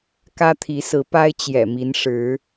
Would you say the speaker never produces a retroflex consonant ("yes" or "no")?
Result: no